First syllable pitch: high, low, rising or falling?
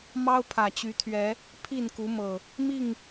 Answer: high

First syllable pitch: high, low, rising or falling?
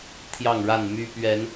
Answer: falling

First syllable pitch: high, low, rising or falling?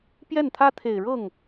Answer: falling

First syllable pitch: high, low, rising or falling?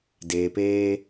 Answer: low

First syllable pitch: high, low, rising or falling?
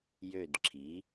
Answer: falling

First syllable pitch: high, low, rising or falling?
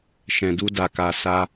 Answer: low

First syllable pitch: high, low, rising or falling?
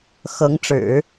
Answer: rising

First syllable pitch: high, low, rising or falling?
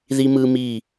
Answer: high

